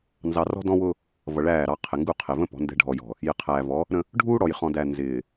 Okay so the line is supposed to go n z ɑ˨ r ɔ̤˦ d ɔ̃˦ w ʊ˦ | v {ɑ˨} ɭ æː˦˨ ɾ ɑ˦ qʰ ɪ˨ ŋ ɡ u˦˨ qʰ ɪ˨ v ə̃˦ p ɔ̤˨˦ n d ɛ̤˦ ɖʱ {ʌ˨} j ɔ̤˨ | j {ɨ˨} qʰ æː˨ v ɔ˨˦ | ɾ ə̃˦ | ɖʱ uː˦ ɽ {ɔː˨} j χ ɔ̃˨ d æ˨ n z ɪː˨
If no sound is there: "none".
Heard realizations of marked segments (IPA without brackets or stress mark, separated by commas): ʌ˨, ɔ˨, ɪ˨, ɔ˨